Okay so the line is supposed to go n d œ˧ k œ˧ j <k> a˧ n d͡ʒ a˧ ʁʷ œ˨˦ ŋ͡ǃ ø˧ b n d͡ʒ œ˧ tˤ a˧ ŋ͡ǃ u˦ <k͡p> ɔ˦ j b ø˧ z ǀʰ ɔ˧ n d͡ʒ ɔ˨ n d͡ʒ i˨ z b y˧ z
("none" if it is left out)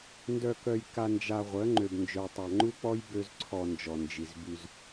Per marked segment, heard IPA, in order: k, k͡p

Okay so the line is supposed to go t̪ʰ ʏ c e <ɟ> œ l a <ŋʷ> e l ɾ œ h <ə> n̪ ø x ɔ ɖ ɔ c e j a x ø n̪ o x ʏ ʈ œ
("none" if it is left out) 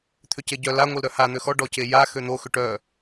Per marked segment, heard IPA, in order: ɟ, ŋʷ, a

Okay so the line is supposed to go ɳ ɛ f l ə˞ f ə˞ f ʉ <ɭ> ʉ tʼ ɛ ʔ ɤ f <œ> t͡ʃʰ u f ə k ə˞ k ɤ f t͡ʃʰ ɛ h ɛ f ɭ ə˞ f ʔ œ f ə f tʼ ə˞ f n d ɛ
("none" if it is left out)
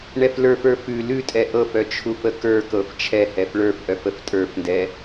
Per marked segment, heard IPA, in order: l, œ

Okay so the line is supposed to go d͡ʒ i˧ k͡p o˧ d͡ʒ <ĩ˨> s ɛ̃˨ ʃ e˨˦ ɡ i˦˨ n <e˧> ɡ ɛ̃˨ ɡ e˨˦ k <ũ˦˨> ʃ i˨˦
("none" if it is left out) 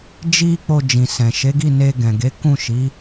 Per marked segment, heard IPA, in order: ĩ˨, e˧, ũ˦˨

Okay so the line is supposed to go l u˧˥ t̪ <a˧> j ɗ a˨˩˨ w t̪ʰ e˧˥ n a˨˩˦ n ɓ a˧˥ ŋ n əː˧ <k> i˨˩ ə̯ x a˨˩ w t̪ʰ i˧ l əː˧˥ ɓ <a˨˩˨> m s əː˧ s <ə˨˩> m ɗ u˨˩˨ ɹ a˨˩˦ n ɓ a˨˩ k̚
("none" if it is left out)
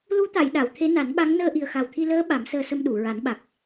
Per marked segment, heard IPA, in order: a˨˩˨, ʔ, a˨˩˦, ə˧

